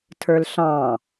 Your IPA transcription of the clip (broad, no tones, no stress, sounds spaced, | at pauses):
tʰ ə˞ l ɬ ɑ̃